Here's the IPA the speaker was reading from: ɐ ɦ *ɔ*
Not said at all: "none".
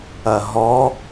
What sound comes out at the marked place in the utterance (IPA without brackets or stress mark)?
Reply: ɔ